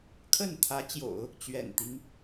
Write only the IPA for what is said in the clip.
kʰ ə˥˩ n t̪ʰ ä˧˥ t͡ɕ j o̰˨˩˦ ʊ̯ | t͡ɕ ɥ ɛ̰˨˩ n t̪ i˦ ŋ

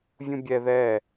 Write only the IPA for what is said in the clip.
vʲ ũ bʲ ɛ ð ɛ

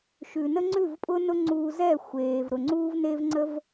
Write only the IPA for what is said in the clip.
ʃ ʉ˩ n ə˥ ŋ͡ǀ ʉ˥˩ v pʼ ʊ˥ n ʊ˥ ŋ͡ǀ uː˧ z ɛ˥˩ xʷ eː˩ v ɾ ʊ˩ ŋ͡ǀ uː˥ v n e˥ v ŋ͡ǀ ə˥ v

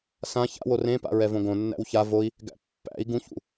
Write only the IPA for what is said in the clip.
s ã ç a̰ w o r ẽ p a̰ ɹ ɛ v õ ɡ õ nː æ̰ w ç a v o i̯ | ɡ æ̰ pː æ̰ i̯ ɡ ũ ç ṵ

